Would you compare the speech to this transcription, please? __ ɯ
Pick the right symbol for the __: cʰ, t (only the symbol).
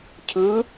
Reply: cʰ